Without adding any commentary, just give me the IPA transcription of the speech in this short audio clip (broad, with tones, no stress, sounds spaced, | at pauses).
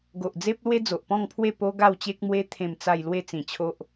ɡ o˨ ʔ d͡z e˦ p̚ l w e˦ d͡z o˨ ʔ p ɔ̃˥˧ ŋ pʰ w e˥˧ p o˦ ɡ a˥˧ w t͡ɕ e˦ k̚ m w e˦ t̪ʰ ẽ˥˧ m t͡s a˥˧ j l w e˥˧ t͡s ĩ˨˩ t͡ɕʰ o˦ ʔ